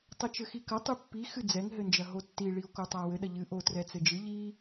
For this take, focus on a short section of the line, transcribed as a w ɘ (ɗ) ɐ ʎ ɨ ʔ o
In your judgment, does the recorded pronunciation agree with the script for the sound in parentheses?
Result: yes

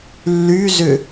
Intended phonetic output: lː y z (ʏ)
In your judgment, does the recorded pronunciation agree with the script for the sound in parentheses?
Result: yes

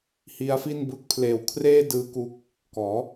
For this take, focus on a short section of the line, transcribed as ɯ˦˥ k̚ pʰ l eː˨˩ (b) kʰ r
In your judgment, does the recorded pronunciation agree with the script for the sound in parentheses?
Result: no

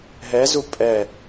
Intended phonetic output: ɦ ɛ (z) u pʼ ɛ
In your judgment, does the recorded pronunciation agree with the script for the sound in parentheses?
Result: yes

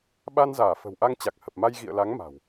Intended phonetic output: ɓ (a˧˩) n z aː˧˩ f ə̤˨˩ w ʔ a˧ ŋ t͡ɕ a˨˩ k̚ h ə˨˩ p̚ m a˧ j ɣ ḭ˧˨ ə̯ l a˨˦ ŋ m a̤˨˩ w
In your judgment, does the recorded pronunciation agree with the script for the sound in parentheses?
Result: no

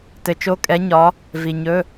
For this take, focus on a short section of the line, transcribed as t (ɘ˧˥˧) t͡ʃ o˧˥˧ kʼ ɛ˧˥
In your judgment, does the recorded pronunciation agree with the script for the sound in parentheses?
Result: no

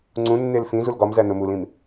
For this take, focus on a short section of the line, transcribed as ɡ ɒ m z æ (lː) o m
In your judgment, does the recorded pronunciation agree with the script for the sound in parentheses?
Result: no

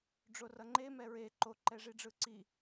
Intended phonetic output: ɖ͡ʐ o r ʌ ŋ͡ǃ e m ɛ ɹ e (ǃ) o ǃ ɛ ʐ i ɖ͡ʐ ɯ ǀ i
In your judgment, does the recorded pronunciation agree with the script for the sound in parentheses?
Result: yes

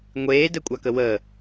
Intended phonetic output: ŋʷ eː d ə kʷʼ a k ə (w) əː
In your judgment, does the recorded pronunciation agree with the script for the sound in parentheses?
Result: yes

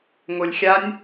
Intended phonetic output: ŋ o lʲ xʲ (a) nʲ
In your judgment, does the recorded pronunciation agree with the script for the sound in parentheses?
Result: yes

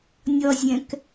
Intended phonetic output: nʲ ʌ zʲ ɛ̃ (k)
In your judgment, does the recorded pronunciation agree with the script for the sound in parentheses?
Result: yes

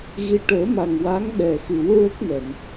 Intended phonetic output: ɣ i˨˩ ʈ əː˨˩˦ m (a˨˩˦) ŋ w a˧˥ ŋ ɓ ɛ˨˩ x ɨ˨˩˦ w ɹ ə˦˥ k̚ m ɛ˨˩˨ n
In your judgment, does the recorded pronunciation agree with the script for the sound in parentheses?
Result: no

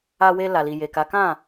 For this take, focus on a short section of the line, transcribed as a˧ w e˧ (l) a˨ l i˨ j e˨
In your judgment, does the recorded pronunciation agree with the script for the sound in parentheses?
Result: yes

